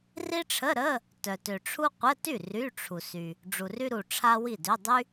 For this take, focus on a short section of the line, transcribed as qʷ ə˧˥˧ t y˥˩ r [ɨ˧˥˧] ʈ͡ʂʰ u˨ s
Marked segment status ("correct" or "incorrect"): incorrect